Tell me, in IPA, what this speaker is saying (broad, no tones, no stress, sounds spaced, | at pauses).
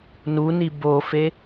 n u n i b o f e